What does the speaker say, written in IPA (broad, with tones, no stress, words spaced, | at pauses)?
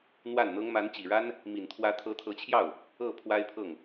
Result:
n̪wa˥˩nn̪ɤ˥ŋ ma˧˥nt͡ɕi˨˩ɻa˥n | mi˨˩nt̪ʰwä˧˥ t̪ʰɤ˧˥t̪ʰɤ˧˥t͡ɕʰjɑ˥˩ʊ̯ | ɤ˥˩ pʰwa˥ɪ̯pʰɤ˥˩ŋ